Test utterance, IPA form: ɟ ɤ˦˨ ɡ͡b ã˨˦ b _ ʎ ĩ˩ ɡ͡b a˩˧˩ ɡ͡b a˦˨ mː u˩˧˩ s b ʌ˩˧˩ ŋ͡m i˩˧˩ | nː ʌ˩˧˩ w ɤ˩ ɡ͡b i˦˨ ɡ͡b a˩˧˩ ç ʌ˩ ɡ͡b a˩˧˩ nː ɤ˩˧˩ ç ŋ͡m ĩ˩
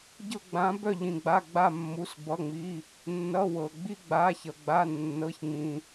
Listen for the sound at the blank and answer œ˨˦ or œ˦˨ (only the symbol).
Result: œ˦˨